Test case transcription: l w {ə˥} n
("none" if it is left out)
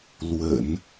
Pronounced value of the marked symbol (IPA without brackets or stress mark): ə̰˨˩˦